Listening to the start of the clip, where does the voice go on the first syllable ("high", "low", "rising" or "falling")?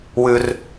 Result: low